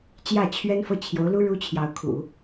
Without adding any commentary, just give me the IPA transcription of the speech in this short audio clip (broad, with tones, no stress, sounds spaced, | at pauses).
t͡ɕ j ä˥˩ t͡ɕʰ ɥ ɛ˥ n f ɤ˥˩ t͡ɕʰ j o˧˥ ʊ̯ l u˥ ɻ u˥ t͡ɕʰ j ɑ˧˥ ʊ̯ kʰ ṵ˨˩˦